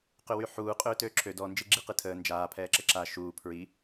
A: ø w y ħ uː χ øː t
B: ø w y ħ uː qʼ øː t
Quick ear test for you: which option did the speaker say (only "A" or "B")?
B